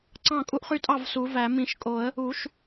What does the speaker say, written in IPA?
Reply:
ǀɑ̃˥˩kʼu˦ʔχy˦tʼɑ˥˩v su˨˩˦væ˨˩˦ mĩ˨˩˦ʃkʼo˨˩˦ə̯ | u˨˩˦ʃ

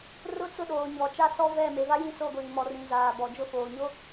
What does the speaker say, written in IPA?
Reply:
rʊ˦t͡sʊ˦˨ ɗoː˨ɲɔ˨t͡ʃa˦ sɔ˦vɛ˦˨ me˨va˦ jĩ˦so˦˨ɡʷiː˨ mɔ˨rĩ˨ zaː˨bɔ˨d͡ʒʊ˦ foː˨ɲo˦

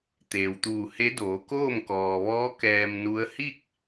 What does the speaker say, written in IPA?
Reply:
t̪eː˩wt̪uː˧˩he˧˥doː˩˧ koː˥˨mkɔː˩ʋɔː˧˥ kɛː˧mnu˧˥ə̯ hi˥˨k̚

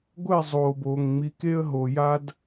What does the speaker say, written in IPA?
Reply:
ɡʷɛ˦˨ zˤoː˨boː˨ŋ ŋ͡mi˨˦ke˦ə̯ɦo˨ja˦d

